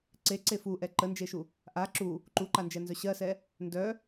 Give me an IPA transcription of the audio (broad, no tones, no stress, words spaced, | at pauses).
ǀeǀe fuʔɛ ǃənd͡ʒeʃu | ʔa ǁu | ǃuǃand͡ʒɛnzœ ɕɜsɛ | ndœ